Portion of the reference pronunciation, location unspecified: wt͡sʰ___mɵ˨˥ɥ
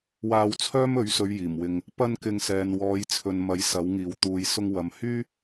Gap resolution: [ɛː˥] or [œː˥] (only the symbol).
œː˥